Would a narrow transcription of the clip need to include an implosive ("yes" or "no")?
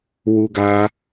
no